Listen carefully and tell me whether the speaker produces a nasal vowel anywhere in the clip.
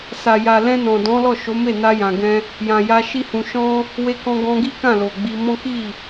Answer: yes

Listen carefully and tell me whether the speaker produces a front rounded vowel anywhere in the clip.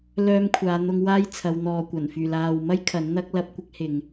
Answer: yes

